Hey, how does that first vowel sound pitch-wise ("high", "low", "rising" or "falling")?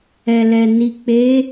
low